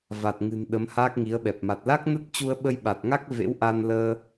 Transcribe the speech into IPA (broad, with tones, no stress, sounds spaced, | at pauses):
v a˨˩ t̚ ŋ ɨ̤˨˩ n ɗ ə˨˦ m h aː˦˥ k̚ ŋ i˨˦ ə̯ ɓ ɛ˨˩ p̚ m a˨˩ t̚ l a˦˥ k̚ n ə˦˥ t̚ t͡ɕ u˧ ə̯ ɓ ə˧ j ɓ a˨˩ t̚ ŋ a˦˥ k̚ v ḛ˧˥ w ʔ a˧ n l əː˧